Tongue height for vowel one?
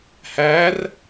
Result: low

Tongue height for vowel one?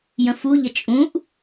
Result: mid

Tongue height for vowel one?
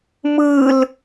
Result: high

